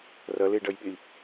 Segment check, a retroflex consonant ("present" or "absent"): present